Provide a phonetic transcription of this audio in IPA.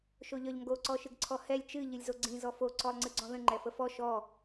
ʃ o ʎ ɒ ʎ ŋ ɡ o ǀ ɔ ʃ ɨ ɡ ǀʰ ɔ h ɛ lʲ t͡ʃ ɨ ʎ ɨ lʲ z o ɡ͡ǀ ĩ z ɔ f o ǀ ɔ lˠ ŋ͡ǀ ɨ ɡ͡ǀ ɔ̃ ð ə̃ ŋ͡ǃ ɛ f ə f ɔ ʃ ɔ

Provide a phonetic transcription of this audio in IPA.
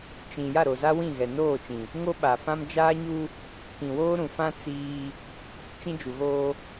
t͡ʃ ĩ˨ j a˦˨ ɾ o˨ z a˦ w ĩ˦˨ ɣ ɛ˨ n oː˦˨ t͡ʃ ĩ˨ | ŋ o˦ ɓ a˨ f ã˦ m d͡ʒ aː˦ ɲ u˦ | k ĩ˨ w oː˦ ɾ ũ˨ f ã˦ t͡s iː˦ | t͡ʃ ĩ˦ d͡ʒ u˨ ɣ oː˦

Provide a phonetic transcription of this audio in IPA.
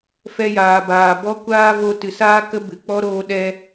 f ɛ˧ j aː˨ b aː˨ b ɔ˧ kʷ aː˧ v o˧ t ɨ˨ s aː˦ k ə˦ b ɨ˨ k͡p ɔ˦ ɾ oː˧ ɗ ɛ˧

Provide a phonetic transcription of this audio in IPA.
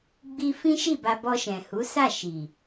ɡ͡b i˧ f ĩ˦ ʃ i˦˨ b a˧ b ɔ˧ ʃ ɛ̃˨ h u˨˦ s a˦˨ ʃ i˨

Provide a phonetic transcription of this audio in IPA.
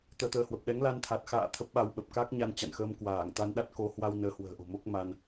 t̪ əː˧ t̪ əː˨˦ h w ə˨˩ p̚ ɗ ɛ˨˦ ŋ l a˧ n t̪ʰ a˨˩ t̚ x a̰ː˧˨ t̪ʰ ə˦˥ p̚ ɓ a˧ w ɓ ə˨˩ p̚ k a˦˥ k̚ ɲ a˧ n t͡ɕ a̰˧˨ n x əː˧ m k w aː˧˩ ŋ t̪ a˧ n ɗ a˦˥ t̚ k o˨˦ h w a˧ w n əː˨˦ h w ə̤ː˨˩ ʔ o̤˨˩ m o˦˥ k̚ m a˧ n

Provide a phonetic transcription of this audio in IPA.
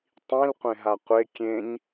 tˤ ĩ l qʷ ẽ ɦ a qʷ e kʲ ẽ ɲ

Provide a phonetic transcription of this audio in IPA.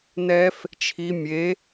n ɛ f | t͡ʃʰ i mʲ e

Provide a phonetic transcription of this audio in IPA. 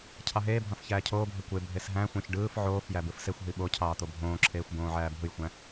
cʰ ɑ ɦ eː bʱ ɑ̃ f ç æː cʰ oː bʱ e kʷ e bʱ e s ɦ æ̃ xʷ ɑ̃ ç ɖ ɯː f ʕ oː f j æ b ɯ f s e xʷ ɦ i ɓ o cʰ ɑː t̪ o bʱ õː ǁʰ eː xʷ b õː ʕ æː bʱ ɯ j xʷ æ̃

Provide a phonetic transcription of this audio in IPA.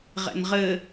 ʁ ɛ̰ n ʁ ɘ

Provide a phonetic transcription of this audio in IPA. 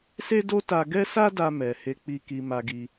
s e˦ d o˦ t a˧ ɡ ɛ˦ s a˦ d a˧ m ɛ˧ h e˦ k͡p i˦ k i˧ m a˧ ɡ i˧

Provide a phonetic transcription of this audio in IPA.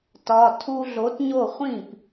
t ɒ˩˧˩ tʰ u˧ ɮ o˩˥ t ɲ o˥˩ χʷ ĩ˥˩ p

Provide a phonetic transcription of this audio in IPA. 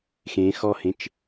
x ẽ x ɔ h ẽ t͡ʃ

